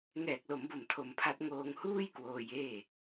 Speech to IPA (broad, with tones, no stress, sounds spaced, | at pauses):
ŋ ɛː˨˩ k̚ l o˩˦ m b o˨˩ m tʰ o˧ m pʰ a˦˥ t̚ ŋ oː˧ ŋ h uː˥˩ j k w oː˧ j eː˥˩